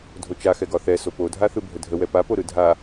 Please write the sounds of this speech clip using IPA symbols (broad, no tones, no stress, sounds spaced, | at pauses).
dʱ o t͡ʃ a x ɛ ɡ ɒ θ ɛ s o p o dʱ a θ ɯ bʱ ə dʱ ə w ɛ p a p o ɾ ɯ dʱ a